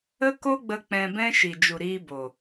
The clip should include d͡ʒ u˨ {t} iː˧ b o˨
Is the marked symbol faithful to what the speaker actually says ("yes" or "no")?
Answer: no